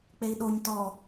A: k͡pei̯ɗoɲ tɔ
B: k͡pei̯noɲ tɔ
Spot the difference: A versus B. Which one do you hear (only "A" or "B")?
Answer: A